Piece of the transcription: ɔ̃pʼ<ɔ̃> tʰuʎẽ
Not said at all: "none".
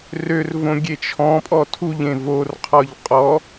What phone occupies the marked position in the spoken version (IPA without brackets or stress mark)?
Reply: ɔ